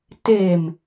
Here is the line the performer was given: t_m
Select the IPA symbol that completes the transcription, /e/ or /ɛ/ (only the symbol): e